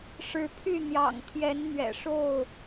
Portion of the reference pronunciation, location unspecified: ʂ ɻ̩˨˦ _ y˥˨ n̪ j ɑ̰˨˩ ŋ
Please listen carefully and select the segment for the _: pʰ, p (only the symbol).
pʰ